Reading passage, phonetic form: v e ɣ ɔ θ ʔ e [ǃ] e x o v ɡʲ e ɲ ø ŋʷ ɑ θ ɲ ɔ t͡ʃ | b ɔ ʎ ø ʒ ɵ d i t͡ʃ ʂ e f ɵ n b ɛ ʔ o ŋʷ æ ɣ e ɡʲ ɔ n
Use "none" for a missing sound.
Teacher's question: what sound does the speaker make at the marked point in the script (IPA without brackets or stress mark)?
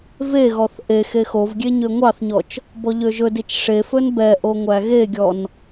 x